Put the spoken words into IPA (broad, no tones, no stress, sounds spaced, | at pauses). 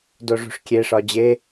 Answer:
d o ʐ ṳ ʂ kʲ e ʂ ɒ d͡ʑ e